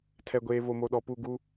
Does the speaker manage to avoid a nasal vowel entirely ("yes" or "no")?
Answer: yes